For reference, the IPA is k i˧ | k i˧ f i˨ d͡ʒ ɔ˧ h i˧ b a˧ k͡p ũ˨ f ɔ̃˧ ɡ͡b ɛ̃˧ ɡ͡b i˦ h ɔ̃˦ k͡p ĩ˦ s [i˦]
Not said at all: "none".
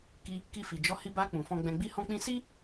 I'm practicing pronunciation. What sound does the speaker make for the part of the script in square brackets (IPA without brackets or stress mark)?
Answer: i˦